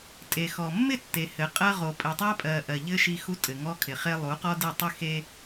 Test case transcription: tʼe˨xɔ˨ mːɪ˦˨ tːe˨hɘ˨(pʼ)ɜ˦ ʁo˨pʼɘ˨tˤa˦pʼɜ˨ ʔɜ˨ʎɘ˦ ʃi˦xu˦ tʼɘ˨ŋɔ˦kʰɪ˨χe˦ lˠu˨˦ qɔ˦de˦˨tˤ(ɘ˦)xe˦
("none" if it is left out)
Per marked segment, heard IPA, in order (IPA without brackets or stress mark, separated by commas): qʼ, ɘ˦